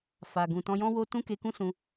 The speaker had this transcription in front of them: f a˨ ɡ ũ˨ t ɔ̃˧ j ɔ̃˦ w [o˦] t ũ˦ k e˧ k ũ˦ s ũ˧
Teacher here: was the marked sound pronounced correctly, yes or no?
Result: yes